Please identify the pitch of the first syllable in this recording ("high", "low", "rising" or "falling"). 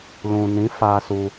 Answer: low